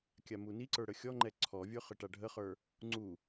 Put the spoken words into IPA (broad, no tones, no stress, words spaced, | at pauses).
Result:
kʲamuniǀə˞ ɽəxʲɔŋ͡ǃɛ ǀʰɔvʲə˞ χəʈaɖʱəχə˞ | ŋ͡ǀu